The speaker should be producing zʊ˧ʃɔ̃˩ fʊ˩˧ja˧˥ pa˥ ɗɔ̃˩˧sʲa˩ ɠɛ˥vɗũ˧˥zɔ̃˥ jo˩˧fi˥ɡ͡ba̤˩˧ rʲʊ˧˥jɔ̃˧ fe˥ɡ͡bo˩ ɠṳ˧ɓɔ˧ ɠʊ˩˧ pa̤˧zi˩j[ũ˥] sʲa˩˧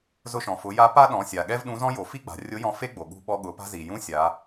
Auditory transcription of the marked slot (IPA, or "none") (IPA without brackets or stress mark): ũ˧˥